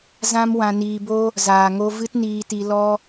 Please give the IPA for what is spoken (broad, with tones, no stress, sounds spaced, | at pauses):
z ã˦ m w ã˧ n iː˧ b o˦ | z aː˨ ŋ o˧ v ɨ˦ t n iː˧ t i˧ l ɔ˦